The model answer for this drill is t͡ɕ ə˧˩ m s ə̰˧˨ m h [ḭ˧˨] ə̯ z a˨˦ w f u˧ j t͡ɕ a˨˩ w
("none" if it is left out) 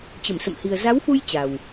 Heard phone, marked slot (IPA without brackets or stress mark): i˨˩